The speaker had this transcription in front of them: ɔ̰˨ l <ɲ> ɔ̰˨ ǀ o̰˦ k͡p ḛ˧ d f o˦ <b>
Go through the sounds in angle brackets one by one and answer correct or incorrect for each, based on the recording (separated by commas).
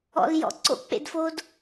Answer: incorrect, incorrect